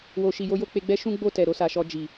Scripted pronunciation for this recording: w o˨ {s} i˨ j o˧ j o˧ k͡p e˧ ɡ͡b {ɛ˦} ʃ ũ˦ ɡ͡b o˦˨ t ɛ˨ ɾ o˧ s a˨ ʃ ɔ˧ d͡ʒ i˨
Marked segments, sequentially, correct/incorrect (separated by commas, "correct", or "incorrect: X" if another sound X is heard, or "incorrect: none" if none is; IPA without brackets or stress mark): incorrect: ʃ, correct